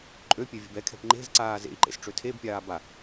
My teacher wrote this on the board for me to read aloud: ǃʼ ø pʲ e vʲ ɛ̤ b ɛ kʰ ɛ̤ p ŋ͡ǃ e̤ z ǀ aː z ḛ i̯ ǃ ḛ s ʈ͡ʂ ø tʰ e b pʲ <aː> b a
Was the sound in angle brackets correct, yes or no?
yes